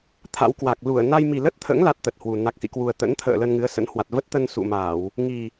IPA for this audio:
t̪ʰa̰˧˥wkwa˨˩k̚ lu˧˩ə̯ na˧jmi˨˩lə˦˥t̚t̪ʰə̰ː˧˥ŋ la˦˥t̚t̪ə˨˩t̚hwu˨˩ na˨˩k̚sḭ˧˨kwu˨˩ə̯ t̪ə̰˧˥nt̪ʰə̰ː˧˨ lə˧nŋɨ˨˦ə̯sə̰˧˥n hwa˨˩t̚və˦˥t̚t̪ə˧n sṵ˧˨ma˧˩˨w | ŋi˨˩

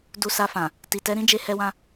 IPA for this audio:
du˧sa˧fã˨ | ti˨tɛ˨˦ɾĩ˦ d͡ʒe˦hɛ˦wã˦

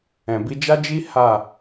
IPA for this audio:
ɛ̃˨bi˧d͡ʒa˦d͡ʒi˦ ha˦˨

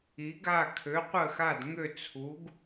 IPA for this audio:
i˩˥ɡ a˥˩ kʰø˩˥ qʷə˥˩xa˥˩d ŋø˥˩t͡sʰu˩˥ɡ

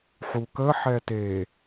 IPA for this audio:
ħukə ħɛte

